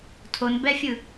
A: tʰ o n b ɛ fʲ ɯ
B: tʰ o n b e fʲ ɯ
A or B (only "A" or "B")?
A